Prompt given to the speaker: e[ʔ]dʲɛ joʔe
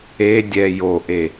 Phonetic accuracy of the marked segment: incorrect: none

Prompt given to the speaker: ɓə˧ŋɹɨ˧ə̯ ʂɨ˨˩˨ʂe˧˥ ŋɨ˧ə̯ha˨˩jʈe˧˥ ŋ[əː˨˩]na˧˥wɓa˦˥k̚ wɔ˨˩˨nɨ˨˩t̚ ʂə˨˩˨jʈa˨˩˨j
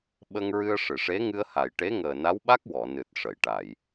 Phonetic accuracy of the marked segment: correct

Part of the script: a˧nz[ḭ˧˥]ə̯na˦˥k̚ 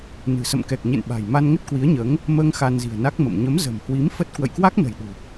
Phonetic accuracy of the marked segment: incorrect: i̤˨˩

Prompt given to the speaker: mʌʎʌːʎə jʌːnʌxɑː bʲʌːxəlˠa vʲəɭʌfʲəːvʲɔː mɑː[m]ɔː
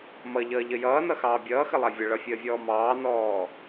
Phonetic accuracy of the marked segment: incorrect: n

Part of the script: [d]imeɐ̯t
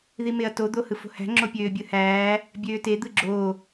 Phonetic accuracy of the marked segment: incorrect: ð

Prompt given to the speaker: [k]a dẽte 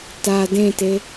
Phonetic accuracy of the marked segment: incorrect: t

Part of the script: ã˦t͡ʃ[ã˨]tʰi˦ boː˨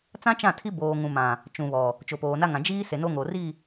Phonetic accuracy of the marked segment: incorrect: ã˦˨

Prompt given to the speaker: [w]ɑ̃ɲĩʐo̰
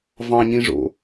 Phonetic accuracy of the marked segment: incorrect: v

